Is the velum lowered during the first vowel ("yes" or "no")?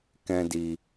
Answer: yes